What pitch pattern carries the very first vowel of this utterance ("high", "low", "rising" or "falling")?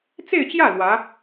falling